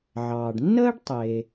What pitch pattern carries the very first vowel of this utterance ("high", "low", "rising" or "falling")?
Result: low